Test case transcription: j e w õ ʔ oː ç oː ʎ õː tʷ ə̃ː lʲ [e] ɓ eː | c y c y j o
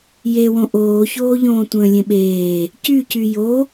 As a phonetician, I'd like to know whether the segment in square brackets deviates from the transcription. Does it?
yes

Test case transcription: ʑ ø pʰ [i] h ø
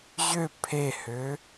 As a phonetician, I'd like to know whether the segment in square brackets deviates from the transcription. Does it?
yes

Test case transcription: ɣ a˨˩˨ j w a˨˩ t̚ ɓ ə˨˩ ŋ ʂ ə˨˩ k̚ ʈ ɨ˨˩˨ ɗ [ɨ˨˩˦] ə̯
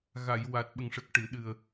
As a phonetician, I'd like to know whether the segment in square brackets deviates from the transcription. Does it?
yes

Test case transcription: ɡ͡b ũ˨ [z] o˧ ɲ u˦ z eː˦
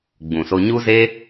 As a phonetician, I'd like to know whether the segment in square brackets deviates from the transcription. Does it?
yes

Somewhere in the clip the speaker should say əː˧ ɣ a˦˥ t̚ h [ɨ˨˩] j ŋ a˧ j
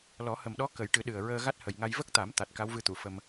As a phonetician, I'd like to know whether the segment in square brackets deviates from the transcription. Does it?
yes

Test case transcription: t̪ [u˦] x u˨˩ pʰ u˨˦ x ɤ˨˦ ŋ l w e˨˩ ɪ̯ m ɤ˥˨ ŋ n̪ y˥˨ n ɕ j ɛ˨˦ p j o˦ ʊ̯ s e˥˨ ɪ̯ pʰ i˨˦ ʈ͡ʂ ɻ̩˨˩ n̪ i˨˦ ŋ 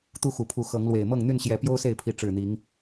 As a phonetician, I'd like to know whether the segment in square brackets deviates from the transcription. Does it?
no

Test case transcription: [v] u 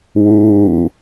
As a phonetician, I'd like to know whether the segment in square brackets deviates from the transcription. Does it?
yes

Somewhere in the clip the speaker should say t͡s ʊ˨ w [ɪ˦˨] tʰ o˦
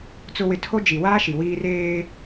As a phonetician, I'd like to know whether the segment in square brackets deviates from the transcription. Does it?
yes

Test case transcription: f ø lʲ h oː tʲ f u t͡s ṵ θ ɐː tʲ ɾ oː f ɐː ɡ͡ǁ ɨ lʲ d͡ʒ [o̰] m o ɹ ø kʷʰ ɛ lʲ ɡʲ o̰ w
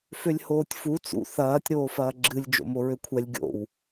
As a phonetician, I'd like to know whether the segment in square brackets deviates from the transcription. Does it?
no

